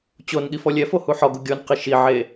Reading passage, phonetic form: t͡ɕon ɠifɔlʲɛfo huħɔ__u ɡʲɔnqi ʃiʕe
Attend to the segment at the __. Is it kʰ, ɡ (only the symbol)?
ɡ